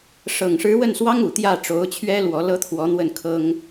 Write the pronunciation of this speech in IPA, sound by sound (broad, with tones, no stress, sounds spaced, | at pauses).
ʂ ɤ˨˩ ŋ ʂ ɻ̩˧˥ w ə˥˩ n s w ɑ˥ ŋ u˨˩ t̪ j ä˥˩ ʈ͡ʂ o˧˥ ʊ̯ t͡ɕʰ ɥ ɛ˥ l w ɔ˧˥ l ɤ˥ t̪ʰ w ɔ˧˥ n̪ w ə˥˩ n kʰ ɤ˥ ŋ